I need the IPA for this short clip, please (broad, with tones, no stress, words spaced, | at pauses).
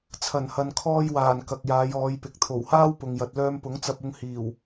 t͡sʰɐ˨˩nhɐ˨nkʰɔː˧jwaː˨˩n kɐ˨k̚jaː˨˧jɔː˨˧jpɪ˨k̚ t̪ʰo˨˩whaː˥wpʊ˨ŋjɐ˨t̚ lœː˧mpʊ˨˥ŋt͡sɐ˧p̚ʊ˧ŋ hiː˨˩w